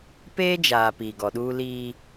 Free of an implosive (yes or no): no